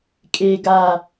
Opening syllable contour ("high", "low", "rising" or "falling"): high